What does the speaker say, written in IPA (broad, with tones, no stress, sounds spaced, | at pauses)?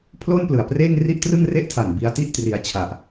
pʰ l o˥˩ n p l ɯ˨˩ a̯ p r eː˥˩ ŋ r i˥˩ ʔ t r ɯ˥˩ ŋ r e˥˩ ʔ tʰ a˨˩ n b i˧ a̯ t i˥˩ ʔ t r i˧ a̯ t͡ɕʰ a˨˩ ʔ